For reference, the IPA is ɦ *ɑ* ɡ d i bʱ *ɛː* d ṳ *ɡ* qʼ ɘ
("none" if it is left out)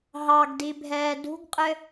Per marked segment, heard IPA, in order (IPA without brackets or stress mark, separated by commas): ɑ, ɛː, ɡ